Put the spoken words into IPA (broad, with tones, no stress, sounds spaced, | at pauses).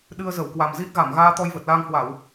ɗ ɨ˧ ə̯ z ə˧˩ w k w a˨˩ m z i˦˥ t̚ ɣ a˧˩ m ɣ aː˧ t̪ ɔ˧ j v ə˨˩ t̚ l aː˧ ŋ h w a˧˩˨ w